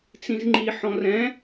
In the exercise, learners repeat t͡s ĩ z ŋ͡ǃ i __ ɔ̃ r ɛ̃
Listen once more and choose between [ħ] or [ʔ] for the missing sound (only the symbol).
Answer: ħ